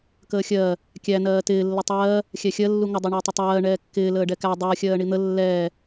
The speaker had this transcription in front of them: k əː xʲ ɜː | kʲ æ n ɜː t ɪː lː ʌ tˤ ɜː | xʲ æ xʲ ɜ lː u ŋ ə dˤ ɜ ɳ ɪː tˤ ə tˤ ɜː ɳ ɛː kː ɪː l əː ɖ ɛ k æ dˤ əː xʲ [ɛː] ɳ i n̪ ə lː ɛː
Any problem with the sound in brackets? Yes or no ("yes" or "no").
yes